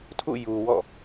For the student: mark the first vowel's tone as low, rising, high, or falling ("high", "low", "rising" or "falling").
falling